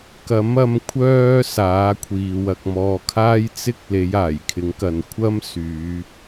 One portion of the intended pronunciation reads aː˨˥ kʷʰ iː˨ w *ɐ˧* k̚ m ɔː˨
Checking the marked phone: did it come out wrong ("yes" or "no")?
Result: yes